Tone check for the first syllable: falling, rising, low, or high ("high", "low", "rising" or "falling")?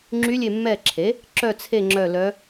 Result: rising